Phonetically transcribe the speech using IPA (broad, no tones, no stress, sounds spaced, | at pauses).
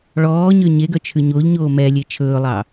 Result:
ɭ ɔː ɲ ø ɲ e ɡ œ t͡ʃʰ ʉ ɲ o ʎ ɲ oː m ɛ lʲ e t͡ʃʰ ɵː lˠ ɑ